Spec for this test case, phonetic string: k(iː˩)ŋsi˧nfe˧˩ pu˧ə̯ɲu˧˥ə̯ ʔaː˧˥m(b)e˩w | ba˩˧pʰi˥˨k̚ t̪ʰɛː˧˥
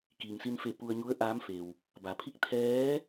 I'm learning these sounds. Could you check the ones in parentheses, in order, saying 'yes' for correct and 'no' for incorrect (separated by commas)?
yes, no